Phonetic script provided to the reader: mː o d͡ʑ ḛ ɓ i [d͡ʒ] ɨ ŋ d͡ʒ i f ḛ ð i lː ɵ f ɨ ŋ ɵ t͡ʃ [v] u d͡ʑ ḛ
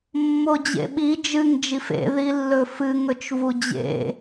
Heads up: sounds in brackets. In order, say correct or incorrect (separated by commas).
correct, correct